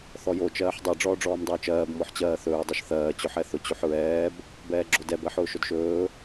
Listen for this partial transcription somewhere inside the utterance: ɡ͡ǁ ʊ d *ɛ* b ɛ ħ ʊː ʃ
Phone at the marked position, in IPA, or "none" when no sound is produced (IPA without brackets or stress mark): ɛ